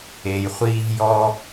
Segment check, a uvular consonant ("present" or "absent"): present